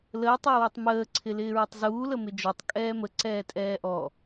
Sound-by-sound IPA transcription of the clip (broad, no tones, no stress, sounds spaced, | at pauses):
l əː tˤ əː w ɪ tˤ m əː ǀʰ ɪ l ɪː ɹ ɪ tˤ z uː l ə m ɪ d͡ʒ ɔ tˤ kʼ ɛː m ə ǀ ɛː tʼ ɛː ʔ ɔ